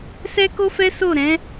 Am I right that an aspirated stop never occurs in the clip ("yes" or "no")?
yes